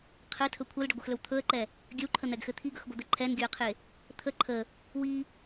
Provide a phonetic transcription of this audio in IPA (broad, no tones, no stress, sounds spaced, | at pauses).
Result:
qʰ ɘ tʰ ɵ kʷʰ ɛ l ɖ ə ɡʷ e x l ɵ w t̪ʰ ɵ ə̯ ǃ ɛ | ɡʲ ɘ w ǃʰ ə n̪ ɛ ɡ x ɘ t̪ʰ i ɡ ɵ x ɡʷ ɘ d̪ ɘ ǃʰ ɛ n ɡʲ ɵ ə̯ qʰ e | t̪ʰ ə ǃʰ ə | w i